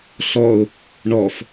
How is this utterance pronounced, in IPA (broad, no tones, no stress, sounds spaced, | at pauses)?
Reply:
ɬ ɔ ʊ̯ | ɳ ɔ f